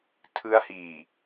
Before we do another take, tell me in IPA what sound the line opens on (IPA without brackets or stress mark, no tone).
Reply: tʰ